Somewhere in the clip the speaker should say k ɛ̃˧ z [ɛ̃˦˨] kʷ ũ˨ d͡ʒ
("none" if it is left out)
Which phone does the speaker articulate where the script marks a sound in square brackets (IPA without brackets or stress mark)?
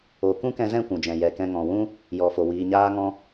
ɛ̃˦˨